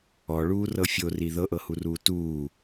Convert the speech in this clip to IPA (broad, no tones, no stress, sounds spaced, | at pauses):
ɔ ɭ uː r ɤ fʲ o r i ð ɤ ʔ ɤ h u r uː t uː